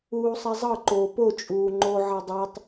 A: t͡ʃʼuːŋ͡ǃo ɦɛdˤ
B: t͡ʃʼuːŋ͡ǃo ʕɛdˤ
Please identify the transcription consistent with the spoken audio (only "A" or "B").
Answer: B